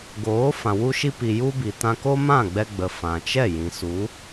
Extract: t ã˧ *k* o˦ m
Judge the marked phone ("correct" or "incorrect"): correct